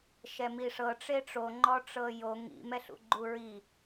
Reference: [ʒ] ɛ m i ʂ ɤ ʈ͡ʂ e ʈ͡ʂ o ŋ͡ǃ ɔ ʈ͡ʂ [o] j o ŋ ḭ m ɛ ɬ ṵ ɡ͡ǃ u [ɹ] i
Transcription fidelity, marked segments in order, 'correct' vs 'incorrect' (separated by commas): incorrect, incorrect, correct